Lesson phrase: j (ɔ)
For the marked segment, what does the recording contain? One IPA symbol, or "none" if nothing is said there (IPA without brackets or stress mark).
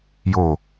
o